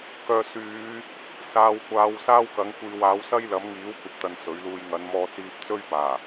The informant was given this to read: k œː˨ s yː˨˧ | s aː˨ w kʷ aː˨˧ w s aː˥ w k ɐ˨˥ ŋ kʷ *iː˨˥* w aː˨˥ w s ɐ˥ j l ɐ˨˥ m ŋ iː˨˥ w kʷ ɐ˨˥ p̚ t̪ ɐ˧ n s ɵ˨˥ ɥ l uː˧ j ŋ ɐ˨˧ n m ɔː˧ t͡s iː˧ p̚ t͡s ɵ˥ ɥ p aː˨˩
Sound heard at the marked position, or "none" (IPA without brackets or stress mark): iː˨